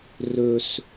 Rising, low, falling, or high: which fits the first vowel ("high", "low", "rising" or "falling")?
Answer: high